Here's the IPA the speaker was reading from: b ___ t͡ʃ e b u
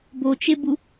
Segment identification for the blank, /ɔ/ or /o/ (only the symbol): o